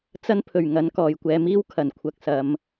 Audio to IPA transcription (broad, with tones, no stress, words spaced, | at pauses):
t͡sɐ˥npʰɵ˨˩ɥŋɐ˨˥n kɔː˨˩jkʷɛː˨˥miː˥w kʰɐ˨˩nkʷʰɐ˨k̚ sɐ˨m